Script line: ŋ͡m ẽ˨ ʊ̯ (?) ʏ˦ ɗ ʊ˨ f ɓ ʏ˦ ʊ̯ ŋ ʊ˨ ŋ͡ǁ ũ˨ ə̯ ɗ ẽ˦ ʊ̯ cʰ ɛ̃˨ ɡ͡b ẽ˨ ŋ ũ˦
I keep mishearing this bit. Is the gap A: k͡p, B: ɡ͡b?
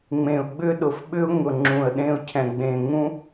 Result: B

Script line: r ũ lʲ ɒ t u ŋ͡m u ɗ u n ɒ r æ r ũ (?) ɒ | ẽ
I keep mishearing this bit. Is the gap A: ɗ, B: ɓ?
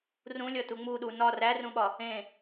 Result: B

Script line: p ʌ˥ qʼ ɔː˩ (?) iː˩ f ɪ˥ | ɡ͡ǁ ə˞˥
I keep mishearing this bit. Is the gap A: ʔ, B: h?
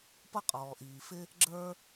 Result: A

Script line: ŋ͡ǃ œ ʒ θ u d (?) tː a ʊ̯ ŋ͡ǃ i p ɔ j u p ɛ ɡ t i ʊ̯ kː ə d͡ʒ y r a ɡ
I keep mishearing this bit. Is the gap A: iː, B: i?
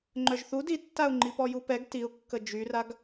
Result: B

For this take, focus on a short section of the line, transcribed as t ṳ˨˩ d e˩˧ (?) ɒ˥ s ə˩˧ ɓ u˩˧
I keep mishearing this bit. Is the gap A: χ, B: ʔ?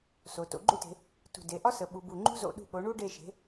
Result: B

